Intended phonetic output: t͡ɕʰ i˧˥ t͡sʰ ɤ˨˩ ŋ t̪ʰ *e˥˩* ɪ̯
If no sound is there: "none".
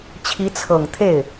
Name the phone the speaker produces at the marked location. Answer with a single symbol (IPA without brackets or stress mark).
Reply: e˥˩